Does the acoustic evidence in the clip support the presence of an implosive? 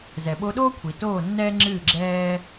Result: yes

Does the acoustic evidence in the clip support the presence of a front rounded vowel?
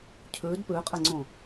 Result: no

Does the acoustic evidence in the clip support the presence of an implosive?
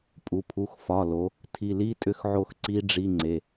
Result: no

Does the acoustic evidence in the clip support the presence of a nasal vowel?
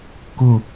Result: no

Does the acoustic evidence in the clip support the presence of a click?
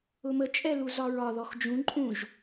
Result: yes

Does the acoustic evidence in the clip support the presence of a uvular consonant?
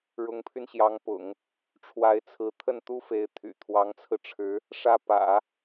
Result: no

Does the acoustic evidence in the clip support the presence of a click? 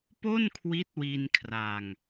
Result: no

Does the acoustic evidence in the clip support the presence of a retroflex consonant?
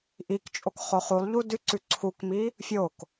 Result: no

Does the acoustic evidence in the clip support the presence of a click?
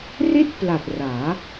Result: no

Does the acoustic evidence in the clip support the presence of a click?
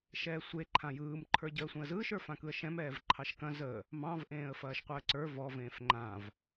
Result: yes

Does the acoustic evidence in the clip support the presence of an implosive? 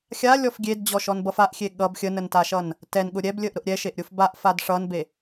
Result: yes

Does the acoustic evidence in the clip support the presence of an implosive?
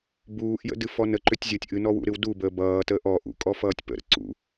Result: no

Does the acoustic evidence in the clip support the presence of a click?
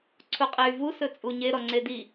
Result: yes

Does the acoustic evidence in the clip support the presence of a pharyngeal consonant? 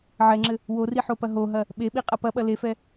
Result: yes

